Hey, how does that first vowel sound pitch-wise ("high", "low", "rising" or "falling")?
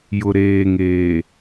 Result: low